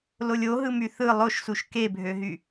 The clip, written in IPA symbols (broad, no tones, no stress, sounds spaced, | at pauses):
l o lʲ o ɦ ɯ m y θ ɯ lˠ o ʃ s u ʃ k e bʱ ø ɦ y